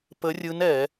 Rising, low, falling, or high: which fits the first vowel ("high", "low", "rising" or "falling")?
rising